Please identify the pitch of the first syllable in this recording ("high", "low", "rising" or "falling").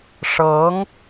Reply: rising